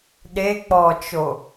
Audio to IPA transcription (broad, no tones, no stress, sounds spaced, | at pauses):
ɗ e k͡p ɔ t͡ʃ o